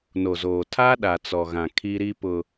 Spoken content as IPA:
n o˨ z oː˨ tʰ a˦ ɗ a˨ t͡s ɔ˨ ɣ ã˨ kʰ i˦ ɾ i˦ p ʊ˨

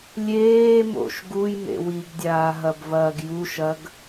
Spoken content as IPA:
lʲ eː m o̰ ʃ ɡ u j m ḛ w i ɡ dʲ aː ɦ ɐ b v ɐː ɡ j u ʃ ɐ ɡ

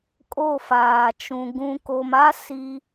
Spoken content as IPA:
kʼ o˦˨ f aː˨ t͡ʃ ũ˨ ɡ ũ˨ k o˨ m a˦ s i˦

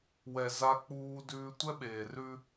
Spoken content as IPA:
w ɛ˨ z a˦ k͡p uː˦ d ʉː˦ tʷ ɛ˦ ɓ eː˨ r ʉ˦

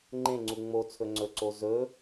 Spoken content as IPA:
ŋ͡ǃ ẽ ŋ͡ǀ u ŋ͡m o t͡sʰ ɵ ŋ͡ǀ ɵ ǀ o z ɵ

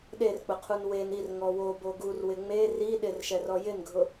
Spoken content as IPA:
ɗ e r k͡p ʊ qʰ u n w e n i r ŋ ɔ w o b o ɡ u r w ɪ ŋ͡m e r i ɗ ɪ r ʃ ɛ r ɔ j ɪ n ɡʱ ʊ

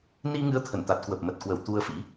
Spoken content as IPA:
n i˧ ŋ ɨ˨˦ ə̯ t̪ʰ ə˧˩ n t̪ a˨˩ t̚ k w ə˨˩ p̚ m ə˨˩ t̚ k w ə˧˩ w t̪ u˧ ə̯ f ḭ˧˥

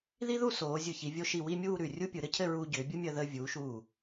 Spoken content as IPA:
ð i˥ ð u˥˧ s oː˩˧ zʲ ɯ˧˩ ç i˩˧ vʲ o˧ ʃ i˧˩ w i˥˧ mʲ uː˥˧ ɾ ʉ˧˩ rʲ u˥ pʲ ɯ˩˧ ɾ ɘ˥ cʰ ɘ˥˧ ɹ uː˧ ɟ ʏː˩˧ bʲ u˥ mʲ əː˧ ð əː˧ vʲ uː˩˧ ʃ uː˧˩

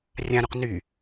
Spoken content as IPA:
rʲ ã ɾ u q n y

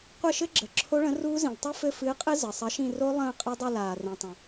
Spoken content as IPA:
qʷ ɘ˦˨ ʃ ɘ˦˥ ɡ͡ǁ ə˩ ǁʰ o˦˥ ɭ ə̃˨˥ r uː˦˥ z ĩ˩ l tˤ ɨ˦˥ f ɘ˦˨ f ɨː˨˥ qʼ ɨ˦˥ z ə˩ sˤ ɜ˨˥ ʃ ĩ˦˨ r o˦˥ lˠ ə̃ː˦˨ qʼ ɘ˦˥ dˤ ɨ˦˨ l aː˩ r ĩ˩ tˤ ə̃˩

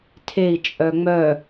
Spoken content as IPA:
tʰ e i̯ t͡ʃʼ œ ŋ͡m œ

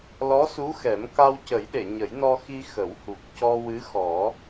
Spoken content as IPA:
l ɔ˧˥ s u˧˥ x ɛ˨˩˦ m k a˧ w c ə˨˩˦ j ɗ e˨˩˨ ɲ ə˨˩˦ j n ɔ˧ x i˧ x ə˨˩˦ w h u˨˩ p̚ c ɔ˧ w ɨ˧˥ x ɔ˨˩˦

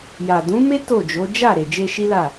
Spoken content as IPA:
j a˨ d ũ˨˦ m e˦ t o˦˨ d͡ʒ o˨˦ d͡ʒ a˦˨ ɾ e˨ d͡ʒ e˧ ʃ i˦ l a˦˨

